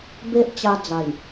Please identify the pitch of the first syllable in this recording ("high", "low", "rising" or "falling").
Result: high